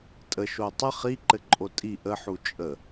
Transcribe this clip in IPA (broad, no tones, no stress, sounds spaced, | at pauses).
tʼ ə ʃ o tˤ ə χ i ǃ ɘ ǃʼ o tʼ i ʔ ə ħ u t͡ʃʼ ə